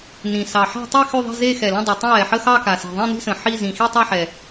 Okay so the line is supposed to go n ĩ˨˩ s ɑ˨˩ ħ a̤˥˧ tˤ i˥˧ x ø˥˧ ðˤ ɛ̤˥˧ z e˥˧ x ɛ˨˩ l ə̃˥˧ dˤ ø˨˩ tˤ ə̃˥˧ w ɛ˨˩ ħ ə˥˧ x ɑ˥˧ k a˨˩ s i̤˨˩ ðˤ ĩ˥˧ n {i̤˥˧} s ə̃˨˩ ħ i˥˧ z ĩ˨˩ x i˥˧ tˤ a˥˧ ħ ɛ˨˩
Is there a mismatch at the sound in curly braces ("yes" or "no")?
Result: no